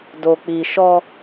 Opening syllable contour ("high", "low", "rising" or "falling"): low